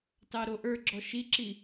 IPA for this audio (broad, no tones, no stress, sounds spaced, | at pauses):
t ɑ ɾ o ʔ ə˞ ɡ͡ǁ ɔ ʃ i ǁ i